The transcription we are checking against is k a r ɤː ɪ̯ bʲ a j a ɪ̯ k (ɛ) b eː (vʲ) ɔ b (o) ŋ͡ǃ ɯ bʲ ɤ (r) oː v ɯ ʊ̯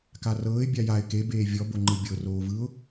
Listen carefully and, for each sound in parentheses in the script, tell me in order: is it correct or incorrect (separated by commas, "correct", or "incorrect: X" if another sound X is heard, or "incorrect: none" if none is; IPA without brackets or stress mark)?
incorrect: e, correct, correct, correct